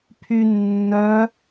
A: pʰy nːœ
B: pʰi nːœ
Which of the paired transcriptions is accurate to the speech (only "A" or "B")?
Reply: A